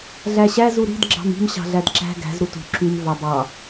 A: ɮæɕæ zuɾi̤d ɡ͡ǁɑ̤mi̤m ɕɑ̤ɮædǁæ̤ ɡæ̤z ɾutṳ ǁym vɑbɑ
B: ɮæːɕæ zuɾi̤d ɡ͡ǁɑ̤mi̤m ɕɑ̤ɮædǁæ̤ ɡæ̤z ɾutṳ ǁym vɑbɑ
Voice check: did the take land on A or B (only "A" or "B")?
A